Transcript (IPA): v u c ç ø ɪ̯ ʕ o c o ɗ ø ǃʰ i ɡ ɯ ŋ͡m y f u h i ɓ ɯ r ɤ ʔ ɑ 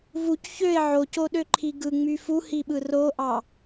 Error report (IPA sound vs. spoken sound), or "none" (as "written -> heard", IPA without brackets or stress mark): ɤ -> o